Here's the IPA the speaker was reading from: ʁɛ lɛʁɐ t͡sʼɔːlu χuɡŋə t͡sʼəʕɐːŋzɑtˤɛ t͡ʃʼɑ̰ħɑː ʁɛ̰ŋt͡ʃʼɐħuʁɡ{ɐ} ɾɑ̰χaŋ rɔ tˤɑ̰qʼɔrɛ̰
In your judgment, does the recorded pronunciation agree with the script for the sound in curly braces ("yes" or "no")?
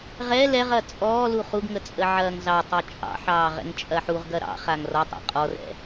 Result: yes